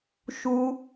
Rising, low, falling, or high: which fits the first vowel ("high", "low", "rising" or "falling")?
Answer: high